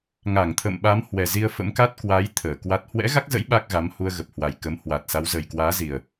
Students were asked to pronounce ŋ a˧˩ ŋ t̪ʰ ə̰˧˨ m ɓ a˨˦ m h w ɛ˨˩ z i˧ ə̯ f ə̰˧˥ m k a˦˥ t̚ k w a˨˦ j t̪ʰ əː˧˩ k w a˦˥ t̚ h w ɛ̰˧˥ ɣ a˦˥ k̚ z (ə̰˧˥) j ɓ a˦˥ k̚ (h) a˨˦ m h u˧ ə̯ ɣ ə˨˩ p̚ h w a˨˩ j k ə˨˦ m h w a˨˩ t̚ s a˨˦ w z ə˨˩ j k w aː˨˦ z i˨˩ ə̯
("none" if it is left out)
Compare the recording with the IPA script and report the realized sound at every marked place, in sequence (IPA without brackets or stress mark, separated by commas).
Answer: ə̰˧˥, ɣ